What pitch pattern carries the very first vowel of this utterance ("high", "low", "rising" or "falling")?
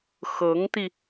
rising